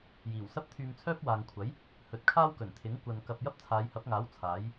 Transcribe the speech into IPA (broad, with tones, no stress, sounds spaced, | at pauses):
j iː˨˩ w s ɐ˥ p̚ t̪ʰ yː˧ m t͡sʰ œː˥ p̚ w aː˨ ŋ kʷʰ ɐ˨˥ j | h ɵ˨˥ t̚ kʰ aː˥ w k ɵ˨˩ n t̪ʰ ɪ˨˥ ŋ kʷ ɐ˨ n k ɐ˨ p̚ j ɐ˥ p̚ t͡sʰ aː˨˧ j h ɐ˨˥ p̚ ŋ aː˨˥ w t͡sʰ aː˨˥ j